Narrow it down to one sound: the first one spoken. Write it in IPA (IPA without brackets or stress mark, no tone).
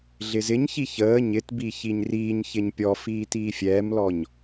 ɮ